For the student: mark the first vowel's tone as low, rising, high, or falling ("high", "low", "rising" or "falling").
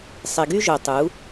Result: low